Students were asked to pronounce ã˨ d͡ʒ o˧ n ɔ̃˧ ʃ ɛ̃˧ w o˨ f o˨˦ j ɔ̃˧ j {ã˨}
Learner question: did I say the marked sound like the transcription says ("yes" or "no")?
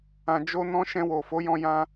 no